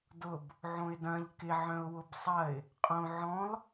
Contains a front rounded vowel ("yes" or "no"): yes